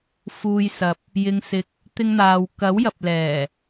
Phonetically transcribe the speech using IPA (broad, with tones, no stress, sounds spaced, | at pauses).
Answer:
f uː˧ j s ɐ˨ p̚ | j ɪ˧ ŋ s ɪ˧ k̚ | t̪ ɪ˥ ŋ n̪ aː˧ w k ɐ˨˥ w j ɐ˨ p̚ l ɛː˨˩